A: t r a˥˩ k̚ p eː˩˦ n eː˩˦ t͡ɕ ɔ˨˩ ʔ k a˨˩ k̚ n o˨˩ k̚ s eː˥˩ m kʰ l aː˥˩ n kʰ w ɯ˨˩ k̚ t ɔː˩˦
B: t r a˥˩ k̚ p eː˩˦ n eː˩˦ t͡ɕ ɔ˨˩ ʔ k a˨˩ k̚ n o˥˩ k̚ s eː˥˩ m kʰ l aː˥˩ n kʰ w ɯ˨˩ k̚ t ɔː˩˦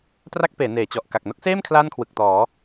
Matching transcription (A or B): B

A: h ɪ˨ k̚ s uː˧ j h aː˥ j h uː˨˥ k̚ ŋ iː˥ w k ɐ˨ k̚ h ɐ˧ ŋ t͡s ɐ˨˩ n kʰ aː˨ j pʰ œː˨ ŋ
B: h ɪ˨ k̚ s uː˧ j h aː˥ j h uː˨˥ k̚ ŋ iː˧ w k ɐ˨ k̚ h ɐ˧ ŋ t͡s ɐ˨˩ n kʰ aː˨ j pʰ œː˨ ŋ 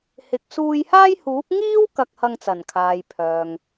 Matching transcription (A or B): A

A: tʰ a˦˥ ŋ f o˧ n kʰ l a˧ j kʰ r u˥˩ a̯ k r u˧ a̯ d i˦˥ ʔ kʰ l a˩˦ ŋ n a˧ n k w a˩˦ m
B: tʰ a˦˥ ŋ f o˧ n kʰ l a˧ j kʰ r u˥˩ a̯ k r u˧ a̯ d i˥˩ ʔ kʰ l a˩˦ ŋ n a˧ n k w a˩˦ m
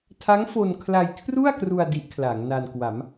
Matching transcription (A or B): A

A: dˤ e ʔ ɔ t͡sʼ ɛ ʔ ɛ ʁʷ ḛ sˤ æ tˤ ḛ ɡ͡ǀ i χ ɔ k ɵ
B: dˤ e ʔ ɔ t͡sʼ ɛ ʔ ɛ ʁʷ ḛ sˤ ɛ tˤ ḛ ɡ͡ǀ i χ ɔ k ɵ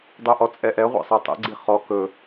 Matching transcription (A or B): A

